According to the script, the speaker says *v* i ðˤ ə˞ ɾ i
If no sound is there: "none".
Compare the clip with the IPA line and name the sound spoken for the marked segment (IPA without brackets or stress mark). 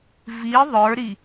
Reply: v